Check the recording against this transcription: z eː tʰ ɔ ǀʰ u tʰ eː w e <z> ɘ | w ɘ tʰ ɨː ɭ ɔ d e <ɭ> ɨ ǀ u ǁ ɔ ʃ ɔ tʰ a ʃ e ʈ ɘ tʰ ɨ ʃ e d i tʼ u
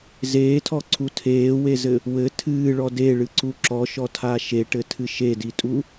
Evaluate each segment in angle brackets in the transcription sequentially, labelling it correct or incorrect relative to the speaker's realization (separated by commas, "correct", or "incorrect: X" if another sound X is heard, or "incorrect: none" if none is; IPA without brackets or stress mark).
correct, correct